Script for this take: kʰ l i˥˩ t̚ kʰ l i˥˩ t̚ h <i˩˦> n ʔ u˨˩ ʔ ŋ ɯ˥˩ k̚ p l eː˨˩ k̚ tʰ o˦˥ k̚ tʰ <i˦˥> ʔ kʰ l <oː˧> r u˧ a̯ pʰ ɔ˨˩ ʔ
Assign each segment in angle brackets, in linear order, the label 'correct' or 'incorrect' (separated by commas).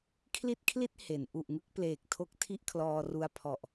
incorrect, incorrect, incorrect